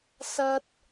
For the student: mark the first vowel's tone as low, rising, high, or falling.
high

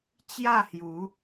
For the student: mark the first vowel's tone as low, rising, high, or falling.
falling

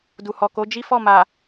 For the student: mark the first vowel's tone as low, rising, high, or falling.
low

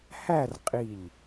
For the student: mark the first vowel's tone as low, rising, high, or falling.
falling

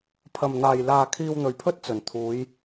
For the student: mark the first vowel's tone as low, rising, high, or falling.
low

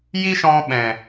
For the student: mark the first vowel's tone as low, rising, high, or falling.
high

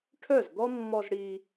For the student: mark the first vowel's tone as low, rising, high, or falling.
falling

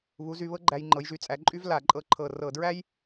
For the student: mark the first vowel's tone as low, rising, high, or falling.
rising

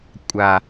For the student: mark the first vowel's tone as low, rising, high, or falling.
low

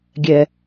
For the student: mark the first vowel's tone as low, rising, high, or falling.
high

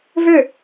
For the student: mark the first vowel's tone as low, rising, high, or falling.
falling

